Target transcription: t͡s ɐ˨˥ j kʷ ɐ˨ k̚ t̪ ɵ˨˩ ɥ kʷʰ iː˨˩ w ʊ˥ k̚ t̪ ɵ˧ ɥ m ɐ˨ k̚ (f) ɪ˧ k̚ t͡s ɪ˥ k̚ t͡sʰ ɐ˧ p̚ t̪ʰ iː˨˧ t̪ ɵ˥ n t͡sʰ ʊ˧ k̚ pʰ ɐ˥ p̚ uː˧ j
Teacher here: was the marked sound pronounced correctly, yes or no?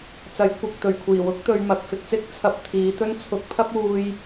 yes